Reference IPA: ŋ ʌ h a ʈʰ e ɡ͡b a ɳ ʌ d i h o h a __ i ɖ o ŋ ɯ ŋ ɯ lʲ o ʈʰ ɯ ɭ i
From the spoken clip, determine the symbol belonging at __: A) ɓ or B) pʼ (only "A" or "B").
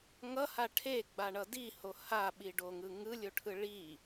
A